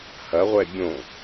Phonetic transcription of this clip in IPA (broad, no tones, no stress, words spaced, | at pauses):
hɐʁʷɛ bʲõ